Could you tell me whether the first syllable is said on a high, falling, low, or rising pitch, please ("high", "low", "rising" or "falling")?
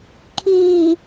low